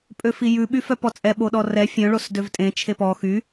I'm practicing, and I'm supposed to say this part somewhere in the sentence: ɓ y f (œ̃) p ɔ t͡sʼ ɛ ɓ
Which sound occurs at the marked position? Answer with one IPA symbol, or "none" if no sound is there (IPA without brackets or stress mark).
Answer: œ